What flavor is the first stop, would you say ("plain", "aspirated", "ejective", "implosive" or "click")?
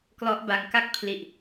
plain